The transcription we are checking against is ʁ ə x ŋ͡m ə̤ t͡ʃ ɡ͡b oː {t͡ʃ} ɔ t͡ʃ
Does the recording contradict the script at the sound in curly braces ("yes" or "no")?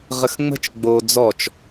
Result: yes